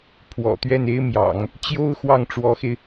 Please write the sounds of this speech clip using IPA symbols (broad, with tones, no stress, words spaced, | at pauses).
pʰwɔ̰˨˩t̪ɥɛ˥˩ne˥ɪ̯mjɑ̰˨˩˦ŋ | t͡ɕjo˥ʊ̯ xwɑ˥˩ŋʈ͡ʂwɔ˧˥xe˧ɪ̯